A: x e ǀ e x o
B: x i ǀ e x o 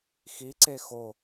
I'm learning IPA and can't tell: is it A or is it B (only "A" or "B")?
B